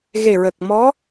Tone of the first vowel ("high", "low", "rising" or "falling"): low